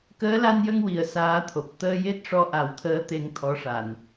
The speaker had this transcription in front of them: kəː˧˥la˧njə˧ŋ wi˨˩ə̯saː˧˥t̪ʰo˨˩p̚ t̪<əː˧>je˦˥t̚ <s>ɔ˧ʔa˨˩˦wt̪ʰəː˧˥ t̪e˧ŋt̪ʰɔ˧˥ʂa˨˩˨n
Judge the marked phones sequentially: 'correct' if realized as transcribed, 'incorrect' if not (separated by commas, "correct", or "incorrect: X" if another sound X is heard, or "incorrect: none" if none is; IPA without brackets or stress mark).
correct, incorrect: ʂ